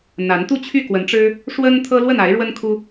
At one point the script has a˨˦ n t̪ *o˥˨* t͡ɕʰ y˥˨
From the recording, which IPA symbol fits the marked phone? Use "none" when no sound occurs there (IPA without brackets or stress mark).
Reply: u˥˨